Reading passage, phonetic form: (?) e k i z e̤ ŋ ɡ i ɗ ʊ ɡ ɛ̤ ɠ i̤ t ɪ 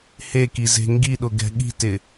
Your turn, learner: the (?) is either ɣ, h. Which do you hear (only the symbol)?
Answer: h